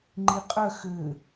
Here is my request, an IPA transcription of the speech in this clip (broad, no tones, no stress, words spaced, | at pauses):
ŋ͡ǃiqʼœ xø